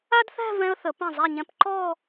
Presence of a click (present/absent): present